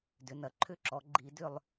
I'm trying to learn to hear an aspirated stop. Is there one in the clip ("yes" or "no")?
yes